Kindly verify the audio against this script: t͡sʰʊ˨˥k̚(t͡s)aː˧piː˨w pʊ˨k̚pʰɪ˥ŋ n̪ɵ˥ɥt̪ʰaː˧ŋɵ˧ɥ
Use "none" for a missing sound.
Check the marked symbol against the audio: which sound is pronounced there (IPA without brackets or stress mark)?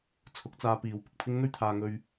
t͡s